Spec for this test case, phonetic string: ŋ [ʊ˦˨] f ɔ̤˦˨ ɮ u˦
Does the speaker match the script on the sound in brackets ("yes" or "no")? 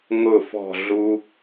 yes